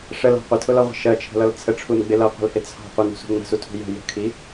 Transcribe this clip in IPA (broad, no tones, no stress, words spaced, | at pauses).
ʂəlɑ̤ qʷətʰʊlɒʁʷə̤ ʃɜt͡ʃʰə̤lʌl t͡sʰəʈ͡ʂʰunɡ͡bɪ lʌqʷə̤lhɪ t͡sʰɑ̤ qʷənṳsṳ ŋ͡mə̤sutʰṳ jə̤ jə̤kʰi